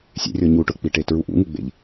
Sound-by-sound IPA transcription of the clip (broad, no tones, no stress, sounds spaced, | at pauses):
sʲ ḛ rʲ ɔ ɲ u ʈ ʊ k͡p i ʈ e t ɹ u ʔ ṵ ŋ u ɡ͡b ḛ ʎ